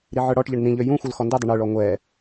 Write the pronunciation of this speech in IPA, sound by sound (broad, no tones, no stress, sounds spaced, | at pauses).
ɾ i ʕ ə˞ ɽ ɔ ʈ ʎ ə ɳ n ĩ ʎ ø j ũ xʷ o l x ɔ n d ø dˤ ɵ ɳ ø ɭ ɔ ŋʷ ɛ